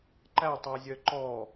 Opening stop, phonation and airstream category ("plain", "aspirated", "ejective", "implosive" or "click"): click